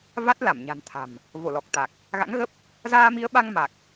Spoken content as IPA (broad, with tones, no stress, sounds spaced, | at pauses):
v a˦˥ t̚ l a˧˩ m ɲ a̤˨˩ n t̪ʰ a̤˨˩ m | v o˧˩ l ɔ˨˩ k̚ t̪ a˨˩ k̚ | ɣ a̰˧˥ ŋ ɣ ə˦˥ p̚ | z aː˧ m i˨˦ ə̯ ɓ a˧ ŋ m a˨˩ k̚